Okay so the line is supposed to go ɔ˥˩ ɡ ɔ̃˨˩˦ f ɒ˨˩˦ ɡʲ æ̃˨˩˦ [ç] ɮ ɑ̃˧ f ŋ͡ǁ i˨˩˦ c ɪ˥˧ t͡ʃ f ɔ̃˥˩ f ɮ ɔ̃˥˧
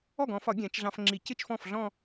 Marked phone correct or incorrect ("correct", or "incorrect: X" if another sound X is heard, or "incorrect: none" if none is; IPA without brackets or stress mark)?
incorrect: t͡ʃ